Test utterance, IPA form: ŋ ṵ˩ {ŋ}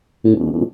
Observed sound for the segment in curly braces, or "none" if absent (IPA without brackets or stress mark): none